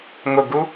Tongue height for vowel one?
high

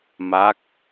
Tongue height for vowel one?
low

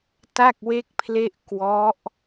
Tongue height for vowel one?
low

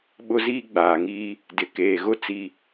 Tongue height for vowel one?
high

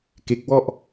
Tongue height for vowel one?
mid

